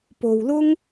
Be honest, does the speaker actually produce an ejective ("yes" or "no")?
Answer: no